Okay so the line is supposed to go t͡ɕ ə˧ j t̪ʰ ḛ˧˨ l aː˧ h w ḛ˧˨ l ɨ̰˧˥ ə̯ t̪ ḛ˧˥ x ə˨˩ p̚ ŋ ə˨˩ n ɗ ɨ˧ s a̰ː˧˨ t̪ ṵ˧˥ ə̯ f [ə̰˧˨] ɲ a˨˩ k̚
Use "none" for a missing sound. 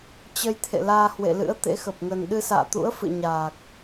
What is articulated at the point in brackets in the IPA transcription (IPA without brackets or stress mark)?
ɨ̰˧˨